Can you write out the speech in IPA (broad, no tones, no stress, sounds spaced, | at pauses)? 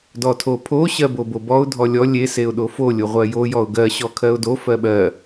d ɔ tʰ o pʰ o ɕ ɜ b o b o b ɔ ʊ̯ dʱ ɔ lʲ ɔ lʲ e s e ʊ̯ ɗ o f o lʲ o ʁʷ ɜ j o j ɔ ʊ̯ ɡ ɜ ɕ ɔ kʰ ɜ ʊ̯ d o f ɜ ɓ ɜ